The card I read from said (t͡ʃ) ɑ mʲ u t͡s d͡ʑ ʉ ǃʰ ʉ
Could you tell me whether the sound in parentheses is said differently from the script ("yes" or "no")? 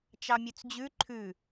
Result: no